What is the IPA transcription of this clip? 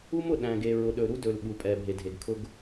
u˦ m ʊ˨ ɗ æ̃˨ ɡ e˨ ɹ ʊ˨ ɗ ɵ˨ ɾ u˦ d ɵ˨ l ɓ u˨ pʼ ɛ˨ bʱ e˨ dʱ e˨ ɡ kʰ ʊ˦ ɡ

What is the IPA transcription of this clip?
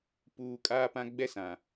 p uː˨ kʼ aː˦ p ã˦ ɡ͡b ɛ˦ s ã˨

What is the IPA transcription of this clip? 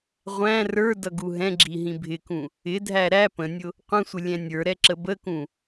ʁʷ æ̃ r ə˞ d ʌ ɡ u ɦ ɛ̃ ɡ͡ǁ i ɦ ĩ bʱ ɪ k ũ | ɪ dʱ æ ɾ æ p ə̃ nʲ ʊ | qʷ ə̃ sʷ ɪ lʲ ɛ̃ nʲ ə˞ ɾ ɛ ǁ ə b ə k ũ

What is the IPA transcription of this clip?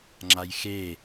ŋ͡ǁ a j x e

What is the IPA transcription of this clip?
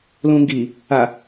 l ũ ŋ ɡ i | a

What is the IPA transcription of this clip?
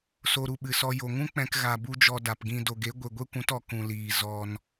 s o˧ ɾ u˦˨ ɓ ɨ˨ s ɔ˧ j o˨ ŋ ũ˦ k͡p ɛ̃˧ k ɣ a˨ b u˦ d͡ʒ ɔ˧ d a˨ p ɡ ĩ˧ d o˨ ɡ e˨˦ ɡʷ e˨ ɡʷ e˦ kʷ ũ˨˦ t ɔ˨ k ũ˨ l iː˨ z ɔ˧ n

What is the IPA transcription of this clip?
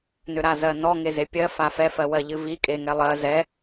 n ʏ ɾ a z ɜ n ɔ ŋ e z e pʲ ɜ f a f ɛ f ɜ w ɜ ʎ ɨ v i kʼ e ŋ ɛ lˠ ɜ z ɛ

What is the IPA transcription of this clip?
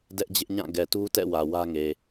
d ɛ˦ ʔ d͡ʑ ɪ˦ ʔ ɲ ã˦˨ ɡ ɛ˨ t u˦ t ɛ̰˦˨ w ä˨ w ä˦ ŋ e˨

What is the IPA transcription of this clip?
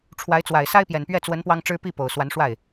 ʈ͡ʂʰ w a˧˥ ɪ̯ t͡s w a˨˩ ɪ̯ s a˥ ɪ̯ p j ɛ˨˩ n p ɥ ɛ˥˩ t͡s w ə˧˥ n p w ɑ˥ ŋ ʈ͡ʂ ɻ̩˥ p i˥˩ p o˨˩ ʊ̯ s w a˧˥ n ʂ w a˥˩ ɪ̯

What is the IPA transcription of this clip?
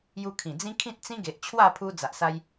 j u˧ kʰ ĩ˨˩ d͡z ĩ˦ kʰ ĩ˦ t̚ t͡s ĩ˦ ɡ e˨ ʔ t͡ɕʰ w a˥˧ pʰ u˧ d͡z a˨ ʔ s a˦ j

